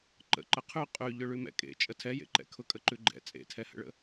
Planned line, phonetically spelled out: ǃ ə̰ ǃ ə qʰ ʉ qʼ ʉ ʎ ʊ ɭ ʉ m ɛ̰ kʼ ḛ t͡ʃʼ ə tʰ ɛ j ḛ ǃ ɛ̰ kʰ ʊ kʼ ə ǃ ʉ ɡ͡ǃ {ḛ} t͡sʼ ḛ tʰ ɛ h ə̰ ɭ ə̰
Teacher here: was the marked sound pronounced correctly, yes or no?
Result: no